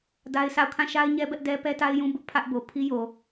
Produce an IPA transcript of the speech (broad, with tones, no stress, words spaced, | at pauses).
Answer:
da˦ɪ̯sa˦˨ʊ̯ kʰã˦˨ʃa˦ɪ̯ɲɛ˦bɛ˦ʔ dɛ˦pɛ˦ta˦ɪ̯ jũ˦ bʊ˦ʔpʰä˦ʔbo˨ pʰi˦jo˨